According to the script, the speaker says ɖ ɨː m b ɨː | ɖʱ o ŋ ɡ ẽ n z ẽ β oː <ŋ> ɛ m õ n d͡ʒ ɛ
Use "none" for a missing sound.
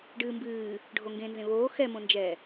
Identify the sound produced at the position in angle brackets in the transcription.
x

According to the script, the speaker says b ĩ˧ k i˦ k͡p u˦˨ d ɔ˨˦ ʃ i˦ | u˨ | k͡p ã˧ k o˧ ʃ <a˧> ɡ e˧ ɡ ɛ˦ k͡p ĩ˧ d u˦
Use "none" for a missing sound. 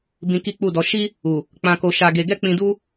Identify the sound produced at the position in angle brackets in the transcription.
a˧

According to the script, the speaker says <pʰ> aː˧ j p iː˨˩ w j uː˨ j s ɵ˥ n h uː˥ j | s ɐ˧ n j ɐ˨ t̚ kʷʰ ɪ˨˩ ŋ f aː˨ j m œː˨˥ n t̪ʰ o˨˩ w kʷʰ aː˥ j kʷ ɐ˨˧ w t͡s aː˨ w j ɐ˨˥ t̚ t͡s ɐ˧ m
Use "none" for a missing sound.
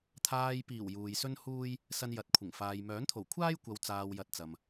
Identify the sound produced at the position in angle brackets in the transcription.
t̪ʰ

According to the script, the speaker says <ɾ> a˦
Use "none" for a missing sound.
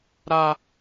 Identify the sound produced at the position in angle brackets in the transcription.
ɾ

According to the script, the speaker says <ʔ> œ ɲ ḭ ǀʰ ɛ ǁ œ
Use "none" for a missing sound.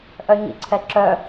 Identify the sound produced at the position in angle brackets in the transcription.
ʔ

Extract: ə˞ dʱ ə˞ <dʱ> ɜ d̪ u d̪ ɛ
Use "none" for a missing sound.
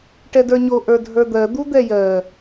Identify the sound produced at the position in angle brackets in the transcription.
d̪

